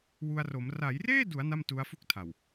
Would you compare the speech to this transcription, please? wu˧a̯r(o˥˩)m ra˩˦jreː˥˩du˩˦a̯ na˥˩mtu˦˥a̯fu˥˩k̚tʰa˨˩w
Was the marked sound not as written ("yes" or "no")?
yes